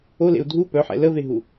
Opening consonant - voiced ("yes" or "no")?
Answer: yes